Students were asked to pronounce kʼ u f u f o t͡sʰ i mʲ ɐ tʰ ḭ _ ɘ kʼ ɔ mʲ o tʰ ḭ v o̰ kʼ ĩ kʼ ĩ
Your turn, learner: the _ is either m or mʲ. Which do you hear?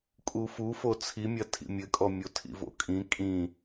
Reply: mʲ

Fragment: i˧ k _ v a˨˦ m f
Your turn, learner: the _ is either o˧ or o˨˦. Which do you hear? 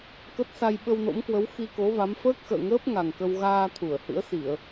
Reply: o˨˦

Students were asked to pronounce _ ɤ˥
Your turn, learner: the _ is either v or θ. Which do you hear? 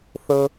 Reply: θ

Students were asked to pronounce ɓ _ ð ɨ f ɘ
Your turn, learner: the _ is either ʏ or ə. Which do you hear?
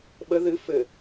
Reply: ə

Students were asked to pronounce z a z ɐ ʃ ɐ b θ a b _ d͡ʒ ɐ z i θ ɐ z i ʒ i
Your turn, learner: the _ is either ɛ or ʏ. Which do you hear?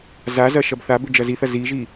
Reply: ʏ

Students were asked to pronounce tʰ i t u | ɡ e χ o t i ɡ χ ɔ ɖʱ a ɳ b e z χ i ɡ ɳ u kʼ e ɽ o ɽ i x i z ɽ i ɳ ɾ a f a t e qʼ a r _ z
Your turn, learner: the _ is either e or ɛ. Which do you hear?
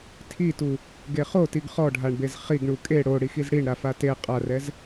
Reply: ɛ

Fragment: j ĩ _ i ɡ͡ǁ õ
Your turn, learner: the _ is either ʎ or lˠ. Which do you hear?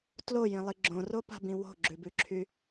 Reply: lˠ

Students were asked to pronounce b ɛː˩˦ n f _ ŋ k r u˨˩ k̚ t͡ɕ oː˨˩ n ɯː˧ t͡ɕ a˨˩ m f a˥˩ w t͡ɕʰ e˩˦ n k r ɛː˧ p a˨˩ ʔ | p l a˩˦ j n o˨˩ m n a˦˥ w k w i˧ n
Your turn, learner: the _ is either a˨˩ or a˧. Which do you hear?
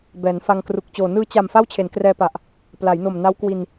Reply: a˧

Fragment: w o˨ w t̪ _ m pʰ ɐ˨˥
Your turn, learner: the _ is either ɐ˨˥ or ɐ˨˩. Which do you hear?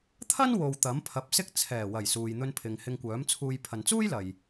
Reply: ɐ˨˥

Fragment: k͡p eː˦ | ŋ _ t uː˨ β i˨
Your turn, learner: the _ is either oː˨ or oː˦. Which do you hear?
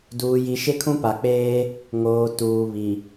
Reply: oː˨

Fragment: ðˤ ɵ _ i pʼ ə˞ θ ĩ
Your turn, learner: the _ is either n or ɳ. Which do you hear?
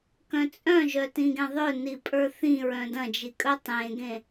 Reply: n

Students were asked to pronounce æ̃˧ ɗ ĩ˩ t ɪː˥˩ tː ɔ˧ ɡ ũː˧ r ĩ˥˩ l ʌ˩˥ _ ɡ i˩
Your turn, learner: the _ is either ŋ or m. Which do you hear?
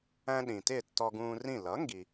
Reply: ŋ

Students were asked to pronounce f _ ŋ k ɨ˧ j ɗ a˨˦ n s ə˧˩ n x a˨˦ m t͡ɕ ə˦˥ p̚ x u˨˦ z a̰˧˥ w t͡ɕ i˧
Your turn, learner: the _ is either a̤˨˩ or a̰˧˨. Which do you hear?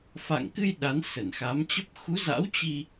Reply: a̰˧˨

